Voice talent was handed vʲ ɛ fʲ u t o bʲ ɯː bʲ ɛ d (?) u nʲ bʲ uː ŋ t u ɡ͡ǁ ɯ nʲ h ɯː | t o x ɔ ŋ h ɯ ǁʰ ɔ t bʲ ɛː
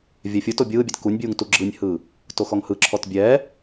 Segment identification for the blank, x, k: k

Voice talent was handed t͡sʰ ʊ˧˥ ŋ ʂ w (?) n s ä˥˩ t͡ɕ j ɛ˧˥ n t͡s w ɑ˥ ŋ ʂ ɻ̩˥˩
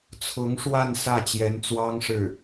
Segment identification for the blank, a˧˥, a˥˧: a˥˧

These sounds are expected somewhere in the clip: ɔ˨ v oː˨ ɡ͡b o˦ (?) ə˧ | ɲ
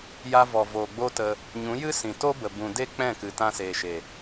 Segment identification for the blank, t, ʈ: t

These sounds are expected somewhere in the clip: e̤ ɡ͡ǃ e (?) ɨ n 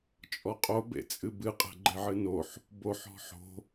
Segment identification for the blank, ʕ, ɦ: ʕ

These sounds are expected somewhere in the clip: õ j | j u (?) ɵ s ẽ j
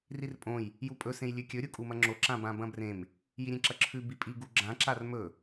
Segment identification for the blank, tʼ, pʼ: pʼ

